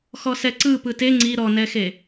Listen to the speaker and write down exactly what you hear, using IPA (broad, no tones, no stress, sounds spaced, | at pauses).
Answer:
x ɔ s ɛ ǀ ɯ p ɯ t e ŋ͡ǀ i ɾ ɔ n ɛ x e